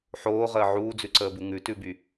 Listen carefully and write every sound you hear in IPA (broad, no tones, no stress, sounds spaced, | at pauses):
ħ oː ʁ əː ʕ uː d͡z ʉ ǀ əː b u ŋ ʉ t ʉ b y